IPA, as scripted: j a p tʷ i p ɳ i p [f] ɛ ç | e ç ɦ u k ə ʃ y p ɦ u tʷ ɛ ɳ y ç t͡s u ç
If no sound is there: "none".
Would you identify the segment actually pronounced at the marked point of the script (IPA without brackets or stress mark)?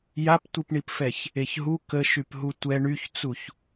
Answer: f